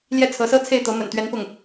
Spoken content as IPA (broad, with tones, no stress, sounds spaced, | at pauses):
l j ɛ˥˩ t͡sʰ ɤ˧˥ s ɤ˥ t͡sʰ e˥˩ ɪ̯ t̪ ɤ˧˥ m ə̰˨˩ n t̪ ɥ ɛ˧˥ n p ʊ˥˩ ŋ